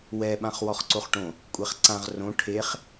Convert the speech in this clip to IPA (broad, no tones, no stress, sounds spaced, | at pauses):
w ɛ ɓ ã χ w ɔ χ ǀ o χ ʈ õ | kʷʼ ɛ χ ǀ ã ʁ r õ ʈʰ e χ